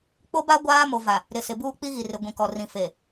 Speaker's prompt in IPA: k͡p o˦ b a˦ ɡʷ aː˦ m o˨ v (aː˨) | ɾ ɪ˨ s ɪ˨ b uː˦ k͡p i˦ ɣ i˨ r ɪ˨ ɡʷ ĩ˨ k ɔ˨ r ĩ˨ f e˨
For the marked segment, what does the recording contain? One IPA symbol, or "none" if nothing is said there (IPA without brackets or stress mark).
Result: a˨